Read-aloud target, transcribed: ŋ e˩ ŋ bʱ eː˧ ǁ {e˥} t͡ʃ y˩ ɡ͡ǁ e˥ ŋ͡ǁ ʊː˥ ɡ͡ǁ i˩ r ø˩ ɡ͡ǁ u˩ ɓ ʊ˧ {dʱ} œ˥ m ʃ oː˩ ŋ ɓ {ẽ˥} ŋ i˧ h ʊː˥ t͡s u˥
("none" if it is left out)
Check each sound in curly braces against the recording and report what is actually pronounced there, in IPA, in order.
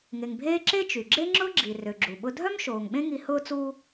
e˥, dʱ, ẽ˥

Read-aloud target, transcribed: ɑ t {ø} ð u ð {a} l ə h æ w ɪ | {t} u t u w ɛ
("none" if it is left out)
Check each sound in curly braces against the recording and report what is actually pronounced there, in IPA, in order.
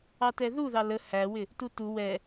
ɛ, ɑ, t

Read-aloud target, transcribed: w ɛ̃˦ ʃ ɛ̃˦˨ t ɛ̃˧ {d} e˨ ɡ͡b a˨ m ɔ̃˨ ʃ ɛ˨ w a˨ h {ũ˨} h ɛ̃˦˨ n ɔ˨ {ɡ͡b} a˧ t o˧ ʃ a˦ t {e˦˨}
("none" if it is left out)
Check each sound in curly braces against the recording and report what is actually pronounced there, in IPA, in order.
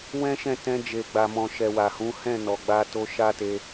d͡ʒ, ũ˨˦, ɡ͡b, e˧

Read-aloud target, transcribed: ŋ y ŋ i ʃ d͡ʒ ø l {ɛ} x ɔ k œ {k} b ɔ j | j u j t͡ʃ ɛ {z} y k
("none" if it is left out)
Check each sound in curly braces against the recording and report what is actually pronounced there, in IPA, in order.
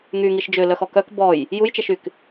œ, k, ʃ

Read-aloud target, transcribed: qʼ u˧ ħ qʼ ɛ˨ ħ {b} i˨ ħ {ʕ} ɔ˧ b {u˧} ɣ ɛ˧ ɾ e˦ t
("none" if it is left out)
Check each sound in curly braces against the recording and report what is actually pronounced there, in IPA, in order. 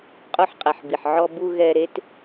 b, ʕ, u˧

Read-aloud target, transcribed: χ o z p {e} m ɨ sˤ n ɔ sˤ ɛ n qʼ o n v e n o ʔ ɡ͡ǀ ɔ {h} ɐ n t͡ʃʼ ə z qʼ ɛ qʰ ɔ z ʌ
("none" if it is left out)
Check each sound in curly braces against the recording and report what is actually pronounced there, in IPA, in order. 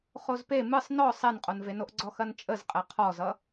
e, x

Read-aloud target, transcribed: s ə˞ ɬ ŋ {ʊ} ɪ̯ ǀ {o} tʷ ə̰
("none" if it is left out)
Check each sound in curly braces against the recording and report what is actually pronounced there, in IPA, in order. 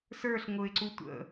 ʊ, u

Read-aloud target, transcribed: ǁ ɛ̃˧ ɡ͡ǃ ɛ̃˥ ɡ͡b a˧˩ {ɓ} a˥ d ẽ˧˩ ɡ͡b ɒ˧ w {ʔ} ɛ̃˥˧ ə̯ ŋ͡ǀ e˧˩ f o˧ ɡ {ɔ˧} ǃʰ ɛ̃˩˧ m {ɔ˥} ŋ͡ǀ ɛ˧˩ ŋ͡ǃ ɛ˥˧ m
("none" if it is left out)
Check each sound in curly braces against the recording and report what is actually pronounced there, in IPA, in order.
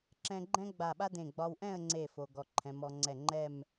ɓ, ʔ, ɔ˧, ɔ˩˧

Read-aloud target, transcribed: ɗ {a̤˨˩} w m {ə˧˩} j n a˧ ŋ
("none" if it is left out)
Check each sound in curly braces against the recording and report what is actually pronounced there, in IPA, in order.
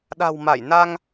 a̤˨˩, a˧˩

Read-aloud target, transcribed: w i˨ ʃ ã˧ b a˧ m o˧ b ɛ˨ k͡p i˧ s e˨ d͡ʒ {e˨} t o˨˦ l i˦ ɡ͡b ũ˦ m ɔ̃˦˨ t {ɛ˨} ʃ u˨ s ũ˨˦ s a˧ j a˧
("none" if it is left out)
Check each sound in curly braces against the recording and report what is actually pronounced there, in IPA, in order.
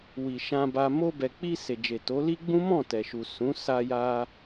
e˨, ɛ˨

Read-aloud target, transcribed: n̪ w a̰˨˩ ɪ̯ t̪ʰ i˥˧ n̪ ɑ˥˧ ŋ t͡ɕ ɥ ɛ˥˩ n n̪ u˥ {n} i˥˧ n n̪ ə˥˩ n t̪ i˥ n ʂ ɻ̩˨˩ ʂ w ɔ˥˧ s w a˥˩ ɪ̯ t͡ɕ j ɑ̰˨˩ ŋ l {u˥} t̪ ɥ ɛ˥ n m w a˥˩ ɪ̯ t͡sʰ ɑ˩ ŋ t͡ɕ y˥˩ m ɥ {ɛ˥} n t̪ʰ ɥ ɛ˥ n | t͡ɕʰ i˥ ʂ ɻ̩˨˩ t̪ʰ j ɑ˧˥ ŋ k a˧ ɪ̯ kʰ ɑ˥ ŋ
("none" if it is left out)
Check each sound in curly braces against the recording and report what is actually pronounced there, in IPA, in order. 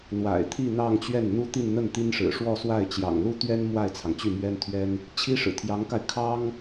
t̪, u˥, ɛ˥

